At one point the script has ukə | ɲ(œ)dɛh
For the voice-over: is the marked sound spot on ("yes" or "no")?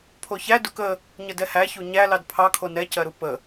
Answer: no